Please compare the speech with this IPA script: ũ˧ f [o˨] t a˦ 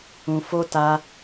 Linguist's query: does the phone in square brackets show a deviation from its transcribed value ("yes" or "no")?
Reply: yes